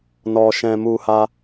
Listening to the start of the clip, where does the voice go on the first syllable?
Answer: low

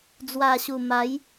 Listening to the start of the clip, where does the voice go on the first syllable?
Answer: low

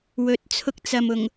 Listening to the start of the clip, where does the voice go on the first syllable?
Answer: rising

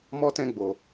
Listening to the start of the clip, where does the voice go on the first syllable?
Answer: high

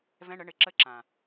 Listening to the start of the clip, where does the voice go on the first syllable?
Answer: rising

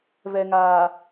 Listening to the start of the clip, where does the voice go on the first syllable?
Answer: low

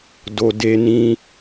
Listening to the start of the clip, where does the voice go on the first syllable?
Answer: low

